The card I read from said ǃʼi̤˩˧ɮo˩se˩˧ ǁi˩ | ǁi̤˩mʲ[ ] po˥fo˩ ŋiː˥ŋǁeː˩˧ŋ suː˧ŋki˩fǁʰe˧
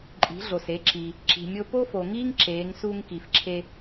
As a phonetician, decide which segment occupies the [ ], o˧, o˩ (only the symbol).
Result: o˧